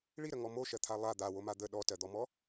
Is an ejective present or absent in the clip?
absent